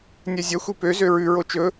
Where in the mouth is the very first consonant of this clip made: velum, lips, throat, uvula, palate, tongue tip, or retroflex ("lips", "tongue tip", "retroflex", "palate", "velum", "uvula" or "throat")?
tongue tip